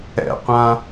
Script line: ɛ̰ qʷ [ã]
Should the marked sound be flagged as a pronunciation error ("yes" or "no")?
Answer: no